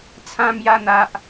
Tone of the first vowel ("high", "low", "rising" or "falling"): high